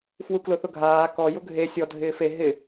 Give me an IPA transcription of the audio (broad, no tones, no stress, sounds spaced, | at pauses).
f w u k l ʊ θ ʊ ɡʱ aː k ɔ j ʊ ɡʱ e sʲ ɔ dʱ ɪː f e ɦ ɪ